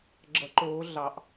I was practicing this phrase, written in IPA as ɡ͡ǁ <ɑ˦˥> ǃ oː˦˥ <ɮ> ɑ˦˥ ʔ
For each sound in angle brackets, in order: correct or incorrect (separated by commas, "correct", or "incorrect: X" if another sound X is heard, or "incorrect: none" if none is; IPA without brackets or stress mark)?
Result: incorrect: ʌ˦˥, correct